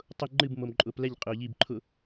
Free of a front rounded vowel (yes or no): yes